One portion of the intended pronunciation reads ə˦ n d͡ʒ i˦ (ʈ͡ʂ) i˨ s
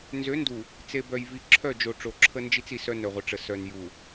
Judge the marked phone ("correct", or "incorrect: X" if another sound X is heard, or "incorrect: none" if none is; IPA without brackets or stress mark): incorrect: t͡s